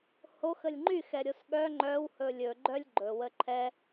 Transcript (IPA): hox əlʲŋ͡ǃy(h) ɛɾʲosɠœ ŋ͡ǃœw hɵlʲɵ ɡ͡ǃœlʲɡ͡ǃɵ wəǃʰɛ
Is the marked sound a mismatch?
yes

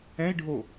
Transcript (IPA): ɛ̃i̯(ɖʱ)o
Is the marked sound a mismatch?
no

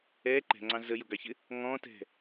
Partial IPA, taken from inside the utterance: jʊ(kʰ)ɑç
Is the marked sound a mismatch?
yes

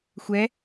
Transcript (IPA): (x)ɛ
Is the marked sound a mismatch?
yes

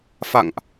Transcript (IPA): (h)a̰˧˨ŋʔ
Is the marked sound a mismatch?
yes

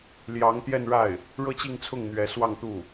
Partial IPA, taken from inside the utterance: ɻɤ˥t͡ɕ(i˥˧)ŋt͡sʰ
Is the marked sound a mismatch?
no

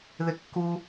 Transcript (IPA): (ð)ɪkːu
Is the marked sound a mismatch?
no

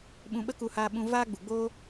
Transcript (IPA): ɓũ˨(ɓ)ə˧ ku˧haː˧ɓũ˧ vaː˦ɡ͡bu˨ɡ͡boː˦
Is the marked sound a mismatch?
no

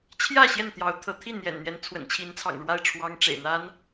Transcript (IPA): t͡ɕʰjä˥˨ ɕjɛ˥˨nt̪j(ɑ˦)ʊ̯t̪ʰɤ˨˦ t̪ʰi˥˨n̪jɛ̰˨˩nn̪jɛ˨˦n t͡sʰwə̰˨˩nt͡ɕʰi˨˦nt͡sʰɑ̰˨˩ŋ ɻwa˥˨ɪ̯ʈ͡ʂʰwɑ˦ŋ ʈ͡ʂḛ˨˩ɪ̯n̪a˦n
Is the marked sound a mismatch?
yes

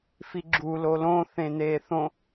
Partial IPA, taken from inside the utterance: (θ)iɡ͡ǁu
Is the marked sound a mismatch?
yes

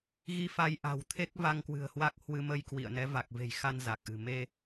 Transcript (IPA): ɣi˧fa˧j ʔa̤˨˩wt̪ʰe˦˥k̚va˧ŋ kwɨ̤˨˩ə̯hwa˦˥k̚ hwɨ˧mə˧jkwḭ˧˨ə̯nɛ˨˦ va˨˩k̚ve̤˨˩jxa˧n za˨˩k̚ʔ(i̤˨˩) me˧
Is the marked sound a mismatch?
yes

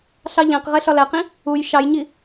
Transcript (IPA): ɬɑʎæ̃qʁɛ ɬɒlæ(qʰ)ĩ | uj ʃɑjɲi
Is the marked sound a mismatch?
yes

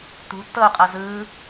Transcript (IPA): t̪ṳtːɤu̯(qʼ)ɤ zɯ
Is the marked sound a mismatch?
no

